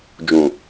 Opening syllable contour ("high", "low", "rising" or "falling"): low